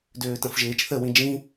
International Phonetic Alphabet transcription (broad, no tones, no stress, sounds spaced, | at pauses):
d øː t ɐ̃ f ʒ eː t͡ʃ θ ə w ĩ d͡ʒ ĩ